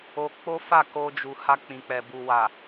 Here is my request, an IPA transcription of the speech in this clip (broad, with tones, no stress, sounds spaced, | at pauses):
o˧ k͡p o˦ f a˦˨ k o˧ d͡ʒ u˨ h a˧ k͡p ĩ˨ k͡p ɛ˨ b u˨ w a˨